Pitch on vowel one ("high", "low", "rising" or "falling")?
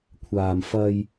low